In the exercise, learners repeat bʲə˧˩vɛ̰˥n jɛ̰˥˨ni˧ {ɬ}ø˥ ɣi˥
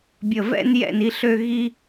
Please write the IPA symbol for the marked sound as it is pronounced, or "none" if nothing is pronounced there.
ɬ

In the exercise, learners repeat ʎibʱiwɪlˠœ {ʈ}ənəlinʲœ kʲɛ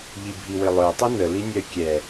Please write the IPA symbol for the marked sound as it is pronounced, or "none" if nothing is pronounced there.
tˤ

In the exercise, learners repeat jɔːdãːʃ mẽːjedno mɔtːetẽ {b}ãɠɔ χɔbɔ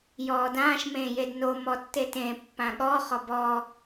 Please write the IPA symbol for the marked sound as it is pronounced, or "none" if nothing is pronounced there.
pː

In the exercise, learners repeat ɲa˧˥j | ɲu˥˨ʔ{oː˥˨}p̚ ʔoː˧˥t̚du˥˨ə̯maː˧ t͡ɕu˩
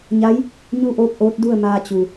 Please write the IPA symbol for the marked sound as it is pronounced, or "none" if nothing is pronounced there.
oː˥˨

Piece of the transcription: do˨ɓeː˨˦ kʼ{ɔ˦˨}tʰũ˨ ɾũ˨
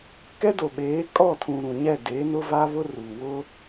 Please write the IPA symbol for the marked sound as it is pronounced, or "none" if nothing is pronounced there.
ɔ˦˨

